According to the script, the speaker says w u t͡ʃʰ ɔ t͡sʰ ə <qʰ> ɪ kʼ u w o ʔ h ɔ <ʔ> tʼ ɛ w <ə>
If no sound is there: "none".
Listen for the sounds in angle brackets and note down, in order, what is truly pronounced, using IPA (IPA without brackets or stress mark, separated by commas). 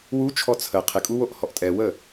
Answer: qʰ, ʔ, ə